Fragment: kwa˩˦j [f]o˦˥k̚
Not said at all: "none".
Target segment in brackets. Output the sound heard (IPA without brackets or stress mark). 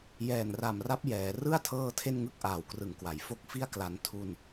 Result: f